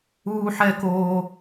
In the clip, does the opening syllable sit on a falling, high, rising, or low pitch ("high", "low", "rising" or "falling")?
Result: high